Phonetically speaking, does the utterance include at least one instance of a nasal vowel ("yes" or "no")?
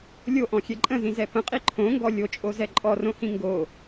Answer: yes